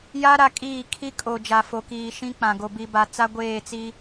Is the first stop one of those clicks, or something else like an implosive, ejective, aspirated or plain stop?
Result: ejective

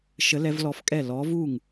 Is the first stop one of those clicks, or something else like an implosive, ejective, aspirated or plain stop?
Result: ejective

